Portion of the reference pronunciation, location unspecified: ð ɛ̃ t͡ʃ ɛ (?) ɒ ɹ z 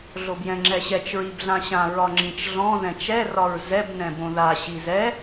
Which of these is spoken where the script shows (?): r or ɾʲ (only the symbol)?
r